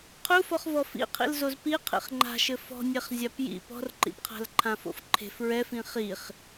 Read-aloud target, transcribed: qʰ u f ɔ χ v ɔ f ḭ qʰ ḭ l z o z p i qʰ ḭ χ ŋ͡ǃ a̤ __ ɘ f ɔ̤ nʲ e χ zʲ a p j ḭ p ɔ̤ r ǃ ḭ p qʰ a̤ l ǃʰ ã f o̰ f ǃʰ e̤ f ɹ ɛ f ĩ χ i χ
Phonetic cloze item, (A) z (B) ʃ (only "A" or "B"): B